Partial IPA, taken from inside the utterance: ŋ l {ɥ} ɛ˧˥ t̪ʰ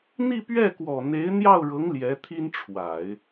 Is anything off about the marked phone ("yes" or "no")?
yes